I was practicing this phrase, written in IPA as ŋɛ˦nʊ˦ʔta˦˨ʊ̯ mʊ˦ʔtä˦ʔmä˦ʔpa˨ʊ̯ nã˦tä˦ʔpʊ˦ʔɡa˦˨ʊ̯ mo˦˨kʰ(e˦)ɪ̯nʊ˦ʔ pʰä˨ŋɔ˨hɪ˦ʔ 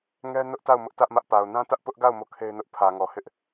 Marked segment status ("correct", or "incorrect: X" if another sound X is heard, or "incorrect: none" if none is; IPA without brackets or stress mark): correct